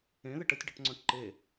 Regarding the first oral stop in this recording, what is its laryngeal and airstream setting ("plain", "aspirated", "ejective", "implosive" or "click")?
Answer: plain